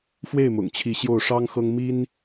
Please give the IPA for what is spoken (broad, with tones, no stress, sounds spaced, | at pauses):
f w e˥˨ ɪ̯ m ʊ̰˨˩ ŋ t͡ɕʰ i˨˦ ɕ j o˥˨ ʊ̯ ʂ ɑ˦ ŋ x ɤ˦ ŋ m i˦ n